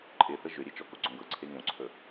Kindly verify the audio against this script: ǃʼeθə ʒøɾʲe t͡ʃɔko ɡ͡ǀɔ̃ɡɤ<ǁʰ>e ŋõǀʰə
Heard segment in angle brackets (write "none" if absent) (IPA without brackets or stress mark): ǀʰ